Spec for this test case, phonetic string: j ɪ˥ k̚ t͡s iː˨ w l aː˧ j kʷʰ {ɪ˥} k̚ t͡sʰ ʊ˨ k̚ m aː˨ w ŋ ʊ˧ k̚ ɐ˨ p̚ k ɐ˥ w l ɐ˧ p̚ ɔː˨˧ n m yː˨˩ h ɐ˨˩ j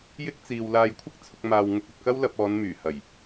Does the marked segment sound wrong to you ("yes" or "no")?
no